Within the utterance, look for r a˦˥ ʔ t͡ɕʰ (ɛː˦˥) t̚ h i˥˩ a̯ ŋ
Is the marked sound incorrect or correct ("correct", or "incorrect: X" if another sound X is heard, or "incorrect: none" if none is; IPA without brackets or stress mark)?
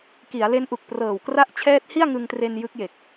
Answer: correct